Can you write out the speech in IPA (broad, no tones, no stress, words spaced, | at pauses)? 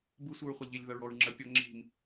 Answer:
bɯ sʷɯɹχʷɐlʎilʲ ðɐɹɔɹŋ͡ǁɜpʲɔ ŋ͡ǁi̤m